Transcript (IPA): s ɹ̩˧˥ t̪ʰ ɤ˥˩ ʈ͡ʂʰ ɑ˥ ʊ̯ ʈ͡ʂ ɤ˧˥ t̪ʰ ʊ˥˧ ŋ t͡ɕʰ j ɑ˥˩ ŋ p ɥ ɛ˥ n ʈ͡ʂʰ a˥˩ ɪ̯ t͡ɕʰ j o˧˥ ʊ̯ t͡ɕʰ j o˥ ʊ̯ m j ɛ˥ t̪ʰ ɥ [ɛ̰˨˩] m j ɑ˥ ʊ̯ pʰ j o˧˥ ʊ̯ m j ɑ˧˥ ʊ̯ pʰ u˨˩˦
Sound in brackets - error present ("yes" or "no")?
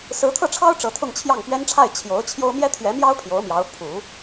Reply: yes